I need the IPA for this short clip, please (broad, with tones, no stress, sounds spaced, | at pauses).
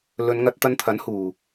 l ɵ˨˧ n ŋ ɐ˧ t̚ t̪ ɐ˧ n t̪ʰ ɐ˨˥ n h uː˨